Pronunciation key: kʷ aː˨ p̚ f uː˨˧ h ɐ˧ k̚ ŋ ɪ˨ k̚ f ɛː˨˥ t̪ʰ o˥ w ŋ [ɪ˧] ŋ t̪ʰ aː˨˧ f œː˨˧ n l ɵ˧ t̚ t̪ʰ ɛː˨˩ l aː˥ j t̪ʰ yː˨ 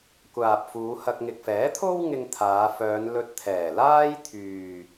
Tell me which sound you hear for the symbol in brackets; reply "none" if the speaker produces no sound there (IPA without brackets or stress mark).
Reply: ɪ˧